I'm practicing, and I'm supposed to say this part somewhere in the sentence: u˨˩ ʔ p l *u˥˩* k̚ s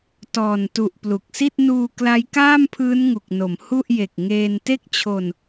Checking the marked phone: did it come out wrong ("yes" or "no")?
yes